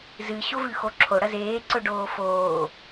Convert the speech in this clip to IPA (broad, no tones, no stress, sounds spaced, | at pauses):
z ɨ ɕ o v ʉ x o ǁʰ o ɽ ɐ z eː ǀ ɵ ɖ oː f oː